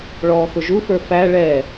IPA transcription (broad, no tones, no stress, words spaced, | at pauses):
ɭɔːxʊʒufə˞ fæ ɭɛ